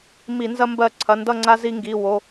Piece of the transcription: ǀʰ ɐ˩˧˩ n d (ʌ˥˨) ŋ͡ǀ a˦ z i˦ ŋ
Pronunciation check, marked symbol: correct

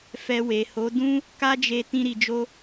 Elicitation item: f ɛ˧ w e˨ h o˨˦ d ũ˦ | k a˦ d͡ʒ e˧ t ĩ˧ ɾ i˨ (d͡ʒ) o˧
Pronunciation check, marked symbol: correct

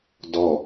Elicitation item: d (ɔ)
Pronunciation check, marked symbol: correct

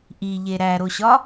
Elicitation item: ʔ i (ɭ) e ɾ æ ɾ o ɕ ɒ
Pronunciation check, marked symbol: incorrect: ʎ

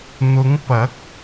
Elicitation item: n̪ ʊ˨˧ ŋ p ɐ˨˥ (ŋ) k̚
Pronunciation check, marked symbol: incorrect: none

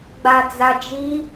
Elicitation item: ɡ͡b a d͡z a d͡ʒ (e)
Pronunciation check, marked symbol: incorrect: i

